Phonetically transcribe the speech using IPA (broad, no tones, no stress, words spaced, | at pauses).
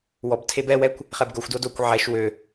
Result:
wɔbtʰeb ɛwɛkʷ | χɛbɡoxʷdo dokʷ ʕɛʃ wø